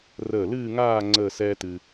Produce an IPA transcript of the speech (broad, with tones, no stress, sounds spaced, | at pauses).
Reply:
r əː˧˩ l ɨː˥˧ ŋ aː˥˧ ŋ͡ǀ əː˥˧ s ɛː˥ t ɨ˧